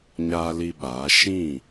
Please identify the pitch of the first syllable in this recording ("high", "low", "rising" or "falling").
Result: high